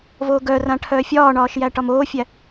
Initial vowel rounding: rounded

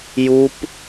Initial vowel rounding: rounded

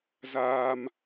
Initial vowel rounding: unrounded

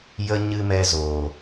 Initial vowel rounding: unrounded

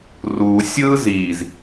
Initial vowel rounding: rounded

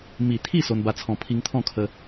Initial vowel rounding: unrounded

